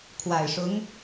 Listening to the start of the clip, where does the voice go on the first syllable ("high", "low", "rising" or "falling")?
low